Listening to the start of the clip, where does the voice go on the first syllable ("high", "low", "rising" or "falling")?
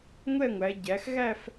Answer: falling